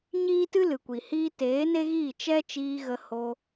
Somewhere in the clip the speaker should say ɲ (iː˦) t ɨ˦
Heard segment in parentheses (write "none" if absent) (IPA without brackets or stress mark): iː˦